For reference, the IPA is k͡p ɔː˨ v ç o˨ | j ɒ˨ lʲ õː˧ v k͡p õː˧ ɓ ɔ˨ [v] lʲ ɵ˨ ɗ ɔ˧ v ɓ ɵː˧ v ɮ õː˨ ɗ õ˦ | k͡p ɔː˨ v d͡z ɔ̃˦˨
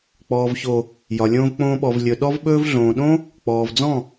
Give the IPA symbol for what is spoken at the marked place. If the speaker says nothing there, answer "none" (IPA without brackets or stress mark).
v